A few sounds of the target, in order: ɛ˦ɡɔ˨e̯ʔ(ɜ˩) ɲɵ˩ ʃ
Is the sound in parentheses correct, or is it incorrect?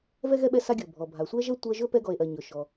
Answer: correct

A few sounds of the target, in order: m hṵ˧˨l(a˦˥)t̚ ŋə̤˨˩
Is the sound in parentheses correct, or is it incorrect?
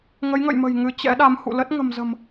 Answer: incorrect: ə˦˥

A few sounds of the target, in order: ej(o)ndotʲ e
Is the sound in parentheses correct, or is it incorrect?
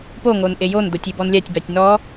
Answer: correct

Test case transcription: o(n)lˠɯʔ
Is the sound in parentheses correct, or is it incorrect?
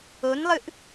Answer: correct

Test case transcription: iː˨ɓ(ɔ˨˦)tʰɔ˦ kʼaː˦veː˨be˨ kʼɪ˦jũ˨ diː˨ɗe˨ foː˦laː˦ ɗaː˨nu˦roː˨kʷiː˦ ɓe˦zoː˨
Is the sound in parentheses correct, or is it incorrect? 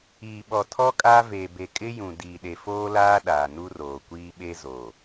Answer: incorrect: ɔ˨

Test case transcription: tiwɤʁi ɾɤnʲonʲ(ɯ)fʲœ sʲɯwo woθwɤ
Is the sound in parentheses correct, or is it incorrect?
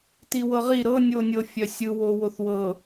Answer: incorrect: ɤ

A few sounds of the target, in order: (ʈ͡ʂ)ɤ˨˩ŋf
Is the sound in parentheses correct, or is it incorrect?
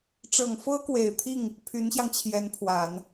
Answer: correct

